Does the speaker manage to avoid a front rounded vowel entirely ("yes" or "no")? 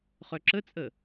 no